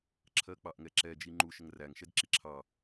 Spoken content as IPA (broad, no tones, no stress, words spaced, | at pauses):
ǁʰɜk͡pɑʔŋɛǁɛ d͡ʒiŋ͡ǃuʃ əŋræŋ ʃɛdǁiǁʰɑ